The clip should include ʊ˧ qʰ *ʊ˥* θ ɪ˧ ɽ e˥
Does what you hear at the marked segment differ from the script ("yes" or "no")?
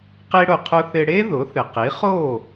no